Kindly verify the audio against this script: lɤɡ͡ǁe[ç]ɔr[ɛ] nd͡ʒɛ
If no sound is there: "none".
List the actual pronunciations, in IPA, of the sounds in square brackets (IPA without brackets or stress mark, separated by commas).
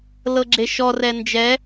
ʃ, ɛ